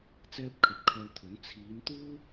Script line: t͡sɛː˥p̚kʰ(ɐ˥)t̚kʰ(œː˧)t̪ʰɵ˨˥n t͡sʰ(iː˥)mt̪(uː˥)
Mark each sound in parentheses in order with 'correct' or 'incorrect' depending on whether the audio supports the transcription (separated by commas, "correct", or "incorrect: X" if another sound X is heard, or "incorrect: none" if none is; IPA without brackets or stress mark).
incorrect: ɐ˨˥, correct, incorrect: iː˨˧, correct